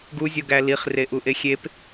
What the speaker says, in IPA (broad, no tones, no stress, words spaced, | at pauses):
ɡuzʲoɡæ liχreʔuʔe xʲep